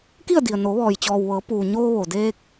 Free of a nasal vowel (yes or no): yes